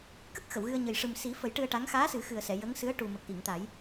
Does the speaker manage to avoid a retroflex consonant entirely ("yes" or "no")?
no